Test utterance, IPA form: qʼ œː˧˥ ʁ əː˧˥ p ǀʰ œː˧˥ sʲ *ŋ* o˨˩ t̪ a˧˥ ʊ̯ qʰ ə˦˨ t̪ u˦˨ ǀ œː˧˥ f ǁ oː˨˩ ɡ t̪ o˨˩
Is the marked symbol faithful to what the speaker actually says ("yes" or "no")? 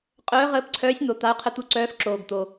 no